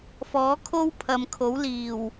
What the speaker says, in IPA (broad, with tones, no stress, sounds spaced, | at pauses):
f ɔː˨˥ kʰ o˥ w pʰ ɐ˨ m kʰ o˨˥ w l iː˨˩ w